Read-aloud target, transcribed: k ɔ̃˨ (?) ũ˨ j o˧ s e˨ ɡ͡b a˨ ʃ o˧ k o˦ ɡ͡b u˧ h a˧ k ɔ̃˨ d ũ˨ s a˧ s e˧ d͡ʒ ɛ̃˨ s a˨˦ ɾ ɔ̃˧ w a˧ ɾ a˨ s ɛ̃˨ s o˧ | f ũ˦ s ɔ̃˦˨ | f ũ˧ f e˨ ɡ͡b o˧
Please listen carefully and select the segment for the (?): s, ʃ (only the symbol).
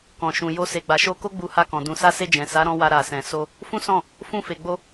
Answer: ʃ